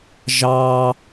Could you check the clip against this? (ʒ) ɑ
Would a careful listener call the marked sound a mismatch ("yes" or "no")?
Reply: no